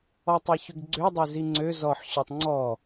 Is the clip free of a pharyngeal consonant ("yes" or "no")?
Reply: no